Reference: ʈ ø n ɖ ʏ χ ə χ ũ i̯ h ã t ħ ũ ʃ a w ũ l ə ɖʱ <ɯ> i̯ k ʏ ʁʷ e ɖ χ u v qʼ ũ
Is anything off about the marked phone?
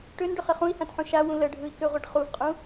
no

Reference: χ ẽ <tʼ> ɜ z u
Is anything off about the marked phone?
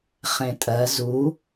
no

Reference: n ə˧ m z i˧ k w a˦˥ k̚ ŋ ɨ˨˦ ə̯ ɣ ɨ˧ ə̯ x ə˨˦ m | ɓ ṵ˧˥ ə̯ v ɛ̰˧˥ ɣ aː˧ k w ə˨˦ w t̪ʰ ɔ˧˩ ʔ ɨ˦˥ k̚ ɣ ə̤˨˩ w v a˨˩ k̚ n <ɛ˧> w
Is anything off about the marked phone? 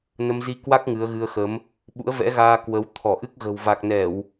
yes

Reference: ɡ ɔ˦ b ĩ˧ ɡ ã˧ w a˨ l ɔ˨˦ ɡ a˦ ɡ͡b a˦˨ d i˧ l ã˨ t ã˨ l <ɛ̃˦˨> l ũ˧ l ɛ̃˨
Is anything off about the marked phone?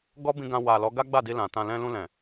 yes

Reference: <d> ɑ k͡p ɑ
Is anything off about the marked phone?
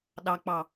yes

